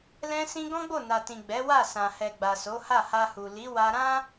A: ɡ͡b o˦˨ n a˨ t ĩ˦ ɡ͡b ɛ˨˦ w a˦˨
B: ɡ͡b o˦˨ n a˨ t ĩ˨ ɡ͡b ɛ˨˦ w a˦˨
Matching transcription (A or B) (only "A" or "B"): B